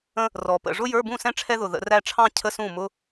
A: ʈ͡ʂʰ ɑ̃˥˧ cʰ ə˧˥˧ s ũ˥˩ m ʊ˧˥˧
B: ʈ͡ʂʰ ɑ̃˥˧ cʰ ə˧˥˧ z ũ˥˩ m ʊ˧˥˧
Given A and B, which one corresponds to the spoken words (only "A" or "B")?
A